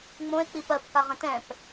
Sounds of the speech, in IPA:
ŋ͡m õ e̯ k͡p i p ɜ p k a ʁ ə̃ t ɛ̃ p

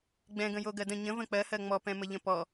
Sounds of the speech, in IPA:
ɡ͡b ɛ̃ ɡ ə̃ j o ɡ ɜ d ə̃ ɲ ə̃ v ə̃ k͡p ɜ h ɜ ŋ͡m ɔ p ɛ̃ m ə ʎ ə̃ p ɔ

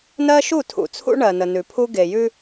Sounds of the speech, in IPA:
n ɜ˦ ʃ u˦˨ tʰ ṵ˨ t͡sʰ ṵ˦ ɳ ɜ˨ n ə˨ n ʉ˨ pʰ u˦ ɡ e˨ j ʉ˦

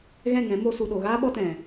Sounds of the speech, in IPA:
ɣ ɛ̃˦˨ ŋ ɛ̃˨˦ m o˧ s u˨ ɗ o˨ ɣ aː˦ ɓ ɔ˦ t ɛ̃˨

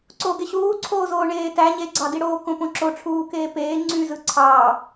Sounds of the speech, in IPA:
ǀ oː ɡ e ɕ uː ǀʰ oː z oː ɳ eː t æ ɲ e ɡ͡ǀ ɑ d i ɽ oː k õ p õ ǁ o ʈ͡ʂʰ uː k eː p eː ŋ͡ǀ y z ɯ ǀʰ ɑː

